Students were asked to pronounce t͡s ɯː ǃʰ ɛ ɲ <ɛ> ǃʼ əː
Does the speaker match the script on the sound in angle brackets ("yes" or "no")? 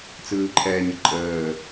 no